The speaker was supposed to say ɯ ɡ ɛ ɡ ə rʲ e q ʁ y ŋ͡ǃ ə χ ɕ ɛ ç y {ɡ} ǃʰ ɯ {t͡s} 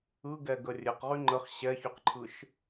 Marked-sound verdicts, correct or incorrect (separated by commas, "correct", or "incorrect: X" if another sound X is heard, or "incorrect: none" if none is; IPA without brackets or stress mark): incorrect: q, incorrect: ʃ